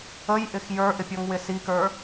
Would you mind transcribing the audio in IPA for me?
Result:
əjʔɪx jə˞ʔɪpʲɔŋwɪ sikə˞

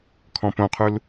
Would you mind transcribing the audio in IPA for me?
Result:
kʰɔ̃põqʰul

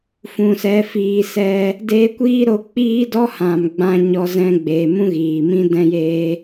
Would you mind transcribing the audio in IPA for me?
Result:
fũ˨sɛ˨˦ fiː˨sɛ˧ | deː˧kʷiː˦ɾo˧ k͡piː˦ dɔ˦hã˨m ɡ͡bã˧ɲɔ˧zɛ̃˧ɡ͡be˨ mũ˦ɣiː˨mĩ˦ dɛ̃˧jeː˧

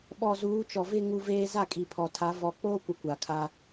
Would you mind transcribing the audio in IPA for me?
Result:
ɓɔ˨ zuː˨˦t͡ʃɔ˨vɪ˦ ŋu˦veː˦ za˦˨kʼi˨pʰɔ˨tʰa˨˦ vɔ˨k͡poː˦kʷɪ˨ kʷa˨kʰa˦

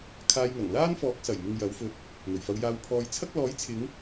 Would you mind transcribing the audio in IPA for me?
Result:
kʰaː˧jŋɐ˨˩ŋ laː˥n fɔː˨˥k̚sɐ˨˩jmɪ˨ŋ jɐ˨˥wfɵ˧t̚ | n̪ɵ˨˩ɥfɐ˨˧wjaː˧w pʰɔː˧jt͡sʰɐ˥k̚ lɔː˨˥jt͡sʰɪ˨˧ŋ

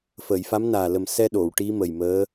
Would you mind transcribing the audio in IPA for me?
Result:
fə˨˩˨j fa˧˥mnaː˨˩ lə˨˩msɛ˧ ɗo˨˩˨w ʈi˧˥ mə˨˩jməː˧˥

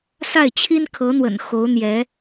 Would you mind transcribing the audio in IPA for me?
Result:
sa˥˩ɪ̯t͡ɕʰi˥nkʰɤ˧˥n̪wə̰˨˩n xo˧˥ʊ̯n̪jɛ˧˥

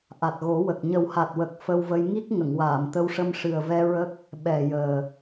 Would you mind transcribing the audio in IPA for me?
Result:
ʔa˨˩t̚ɣo˨˩˦wə˨˩k̚ ɲə˨˩wha˨˩t̚wə˨˩k̚ fə˧wvə˧j ŋi˦˥k̚ ŋə˨˩˨ŋwaː˨˩˨mt̪ə˧wʂə˧m ʂɨ˨˩ə̯vɛ˧ ɹə˦˥k̚ | ɓɛ˨˩jəː˨˩

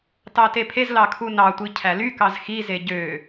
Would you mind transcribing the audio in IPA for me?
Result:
tɑtepʰezlɑ kʰunɑtʷi cʰælykɑz xize ɟø

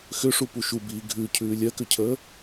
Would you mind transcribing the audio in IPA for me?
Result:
xʏʂupu ʃubiː ɡʱʉcʰʉː lʲɜkʏcʰəː

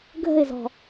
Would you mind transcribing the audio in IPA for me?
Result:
ɡʱə̤ɪ̯zɔ̤

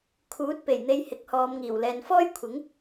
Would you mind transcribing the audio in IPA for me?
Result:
kʰuː˨˥t̚pe˨˩jn̪e˧j hɪ˨˥k̚hɔː˨˧mŋiː˨˩w lɛː˨nfɔː˥jkʷʰɪ˨˥ŋ

